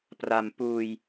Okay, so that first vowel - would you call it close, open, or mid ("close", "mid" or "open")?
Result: open